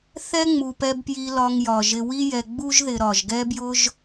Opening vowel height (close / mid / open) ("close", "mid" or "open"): mid